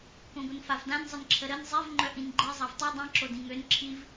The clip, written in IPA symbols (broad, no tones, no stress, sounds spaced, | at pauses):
k õ ɡʷ ə n f a v d ã n zˤ ə n ǁʰ ə ɾ ə n zˤ e v ŋ͡ǃ œ ʔ ĩ n ɡ͡ǃ e zˤ a v tˤ i dˤ ĩ ǁ o d ĩ ŋ ø n ǁʰ i v